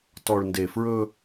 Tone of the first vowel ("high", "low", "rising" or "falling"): low